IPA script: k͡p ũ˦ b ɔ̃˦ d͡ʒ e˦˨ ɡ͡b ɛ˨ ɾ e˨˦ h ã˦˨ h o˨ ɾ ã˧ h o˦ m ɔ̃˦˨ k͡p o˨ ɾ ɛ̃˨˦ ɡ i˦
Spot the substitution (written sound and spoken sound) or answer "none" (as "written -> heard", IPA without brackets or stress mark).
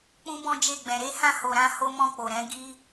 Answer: ɛ˨ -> ɛ̃˨